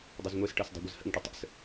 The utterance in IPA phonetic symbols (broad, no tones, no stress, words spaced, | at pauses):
dˤəzŋʷɛsʈɤs dˤe̤ɡʷəzhə̰ŋʈə tˤə̰s